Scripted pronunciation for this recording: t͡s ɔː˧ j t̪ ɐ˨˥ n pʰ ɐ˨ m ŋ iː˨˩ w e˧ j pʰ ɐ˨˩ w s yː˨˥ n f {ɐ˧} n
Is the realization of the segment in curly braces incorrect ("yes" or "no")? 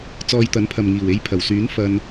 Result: no